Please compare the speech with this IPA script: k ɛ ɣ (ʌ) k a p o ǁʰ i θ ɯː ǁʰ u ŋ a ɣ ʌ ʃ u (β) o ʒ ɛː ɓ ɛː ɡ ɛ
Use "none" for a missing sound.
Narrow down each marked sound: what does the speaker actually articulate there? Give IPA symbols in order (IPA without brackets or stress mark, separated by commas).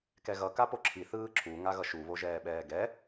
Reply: ʌ, β